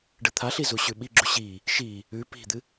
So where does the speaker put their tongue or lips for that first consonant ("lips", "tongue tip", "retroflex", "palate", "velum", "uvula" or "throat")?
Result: retroflex